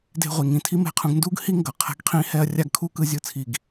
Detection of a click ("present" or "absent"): absent